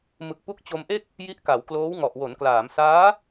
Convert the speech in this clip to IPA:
mɯ˨˩k̚pu˦˥k̚t͡ɕo˧mʔe˥˩k̚ | ji˦˥ʔka˩˦w kloː˦˥wŋɔ˨˩ʔ wo˩˦nklaː˩˦msaː˦˥

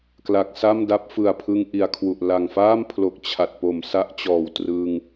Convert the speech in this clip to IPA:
kla˨˩k̚sa˥˩mda˦˥p̚ fɯ˨˩a̯pʰɯ˧ŋ ʔi˩˦a̯kʰwu˨˩ʔ la˨˩ŋfaː˥˩mpʰlo˨˩k̚ t͡ɕʰa˨˩t̚po˨˩msa˦˥ʔt͡ɕɔː˨˩w trɯ˧ŋ

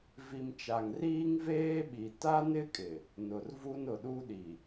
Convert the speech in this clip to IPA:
vi˨mt͡ʃa˨ŋriː˦ŋ veː˦ɓi˨ ta˦nɪ˦kʼɪ˨ | nʊ˨rvu˦nʊ˨ ɗu˦ɗi˨

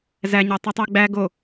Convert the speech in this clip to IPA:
zæɲɑ tˤytˤæɡ͡bæ ɡo

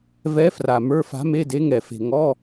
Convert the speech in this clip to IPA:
vɛ˧˥fra˨˩ mə˞˧˥˧fa̤˧˥me˧˥˧de˧˥ ŋɛ˨˩fe̤˨˩ ŋɔ˧˥˧

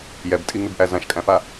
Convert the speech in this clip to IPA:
jɛbtʼiŋʉbʔæ zãʃkʼæ̃fa

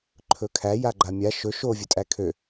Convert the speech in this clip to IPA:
ǃʰɵkʰæ jaɡ͡ǃamʲa ʃɵ ʃo vʲɵtʼækʰø

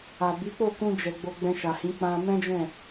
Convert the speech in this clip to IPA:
a˨bi˨˦k͡po˦˨ kũ˧ d͡ʒɛ˨ ɡ͡bo˧ɡ͡bɛ̃˧ʃa˨hĩ˨˦ k͡pã˧mɛ̃˦d͡ʒɛ̃˦˨

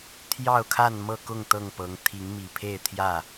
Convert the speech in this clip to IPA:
t̪ʰjɑ˥˨ʊ̯kʰa˥˨nmɤ˥˨kʊ˥˨ŋ t̪ɤ˥˨ŋpɤ˨˦ŋ t̪ʰi˨˦ŋmi˨˩pʰe˥˨ɪ̯t̪ʰjä˥˨

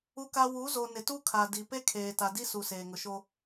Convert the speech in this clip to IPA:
u˦ka˦ wu˨˦zo˨ nɪ˨tu˦kʰa˨di˨ pe˦kʰeː˨ta˨ di˦su˨ seː˨ŋʊ˨ʃo˦

